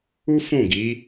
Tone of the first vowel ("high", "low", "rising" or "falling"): high